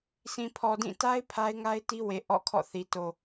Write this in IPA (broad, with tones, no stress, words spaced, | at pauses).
sʰĩ˨pʰɔ˨ dĩ˦˨ ta˦ɪ̯ pʰa˦ɪ̯ŋa˦ɪ̯ti˦we˨ ʔɔ̰˦˨kʰɔ̰˦˨θi˨ to˨